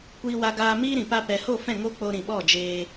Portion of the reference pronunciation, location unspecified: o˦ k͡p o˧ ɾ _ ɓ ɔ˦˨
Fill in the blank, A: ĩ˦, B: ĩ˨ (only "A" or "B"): B